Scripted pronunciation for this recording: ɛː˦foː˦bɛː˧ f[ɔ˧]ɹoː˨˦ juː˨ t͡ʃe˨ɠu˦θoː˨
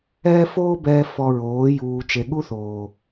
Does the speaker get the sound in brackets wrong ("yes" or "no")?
no